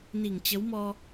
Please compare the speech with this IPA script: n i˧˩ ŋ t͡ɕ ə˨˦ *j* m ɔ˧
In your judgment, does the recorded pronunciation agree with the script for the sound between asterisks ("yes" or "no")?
no